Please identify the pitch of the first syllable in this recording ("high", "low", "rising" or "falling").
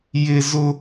high